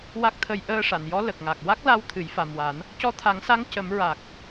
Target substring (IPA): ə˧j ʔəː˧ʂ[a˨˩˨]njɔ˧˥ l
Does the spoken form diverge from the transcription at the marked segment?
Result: no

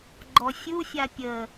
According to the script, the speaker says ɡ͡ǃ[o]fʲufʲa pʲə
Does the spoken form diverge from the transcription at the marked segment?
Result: yes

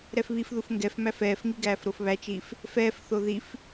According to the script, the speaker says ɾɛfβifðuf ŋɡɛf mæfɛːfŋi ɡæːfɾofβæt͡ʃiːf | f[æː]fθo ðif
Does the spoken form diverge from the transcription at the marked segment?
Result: yes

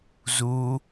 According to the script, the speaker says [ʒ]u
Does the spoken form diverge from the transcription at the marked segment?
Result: yes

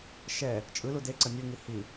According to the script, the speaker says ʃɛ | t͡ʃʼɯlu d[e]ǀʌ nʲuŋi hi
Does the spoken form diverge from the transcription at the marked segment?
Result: no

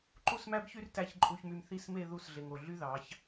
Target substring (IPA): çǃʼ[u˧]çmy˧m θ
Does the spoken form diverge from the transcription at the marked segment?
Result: no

